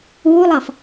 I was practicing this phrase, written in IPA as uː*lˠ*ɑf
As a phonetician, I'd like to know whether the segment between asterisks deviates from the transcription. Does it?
no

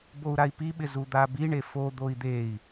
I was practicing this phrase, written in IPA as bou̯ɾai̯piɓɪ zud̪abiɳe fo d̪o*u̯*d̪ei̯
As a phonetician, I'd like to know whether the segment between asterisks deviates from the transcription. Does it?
yes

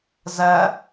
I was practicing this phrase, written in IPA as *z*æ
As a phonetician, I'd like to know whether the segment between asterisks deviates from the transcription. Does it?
no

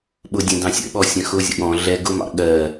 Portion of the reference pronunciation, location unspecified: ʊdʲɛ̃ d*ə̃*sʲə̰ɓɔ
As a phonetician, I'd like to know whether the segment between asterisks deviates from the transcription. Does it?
yes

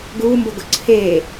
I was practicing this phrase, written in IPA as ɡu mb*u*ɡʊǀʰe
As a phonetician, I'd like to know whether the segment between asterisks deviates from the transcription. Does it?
yes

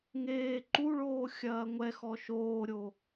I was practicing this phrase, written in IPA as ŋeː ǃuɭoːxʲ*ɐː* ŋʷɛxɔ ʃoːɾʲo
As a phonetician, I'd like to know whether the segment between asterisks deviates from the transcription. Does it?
no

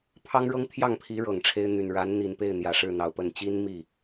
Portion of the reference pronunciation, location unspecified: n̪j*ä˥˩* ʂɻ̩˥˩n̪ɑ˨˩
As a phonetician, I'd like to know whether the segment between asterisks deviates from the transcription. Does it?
yes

